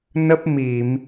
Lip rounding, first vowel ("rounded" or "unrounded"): unrounded